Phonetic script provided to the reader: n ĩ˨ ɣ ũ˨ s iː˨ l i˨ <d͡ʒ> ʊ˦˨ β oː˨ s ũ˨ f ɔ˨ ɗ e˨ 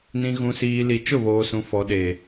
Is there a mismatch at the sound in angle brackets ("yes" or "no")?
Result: yes